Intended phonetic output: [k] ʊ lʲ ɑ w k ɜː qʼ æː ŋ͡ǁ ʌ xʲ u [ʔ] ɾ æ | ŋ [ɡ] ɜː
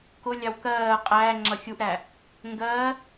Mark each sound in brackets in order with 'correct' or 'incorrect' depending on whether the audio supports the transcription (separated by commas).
correct, correct, correct